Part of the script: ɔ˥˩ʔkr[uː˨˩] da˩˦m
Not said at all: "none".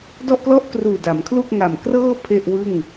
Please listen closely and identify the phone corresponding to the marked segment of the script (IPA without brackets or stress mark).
uː˨˩